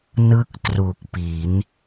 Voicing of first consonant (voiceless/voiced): voiced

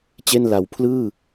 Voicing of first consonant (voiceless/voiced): voiceless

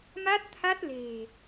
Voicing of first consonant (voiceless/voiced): voiced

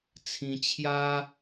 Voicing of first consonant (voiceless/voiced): voiceless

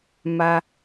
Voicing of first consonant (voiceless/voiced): voiced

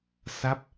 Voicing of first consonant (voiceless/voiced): voiceless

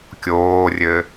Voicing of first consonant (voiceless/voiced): voiceless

